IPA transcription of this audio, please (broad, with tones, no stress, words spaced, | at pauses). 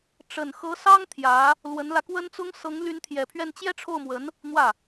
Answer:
ʈ͡ʂə˨˩nxɤ˧˥sɑ˥ŋ t̪ʰjä˧˥ | lwə˧˥nlä˧kwə˥nt͡sʊ˥ŋ sɤ˧˥ŋly˧˥nt̪ʰjɛ˨˩pʰɥɛ˥˩n t͡ɕjɛ˥ʈ͡ʂʰo˥˩ʊ̯mwə˧˥n | n̪wä˥˩